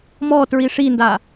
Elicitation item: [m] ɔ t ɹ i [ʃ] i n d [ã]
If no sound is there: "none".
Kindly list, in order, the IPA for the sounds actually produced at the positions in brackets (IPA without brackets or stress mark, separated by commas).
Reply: m, ʂ, a